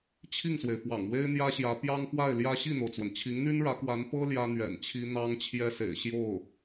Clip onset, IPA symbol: t͡ɕʰ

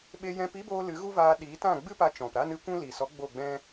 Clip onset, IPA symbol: ɓ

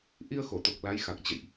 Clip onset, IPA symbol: ʔ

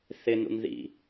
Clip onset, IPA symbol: θ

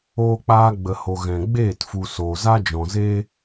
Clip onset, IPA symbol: oː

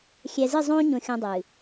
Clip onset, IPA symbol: xʲ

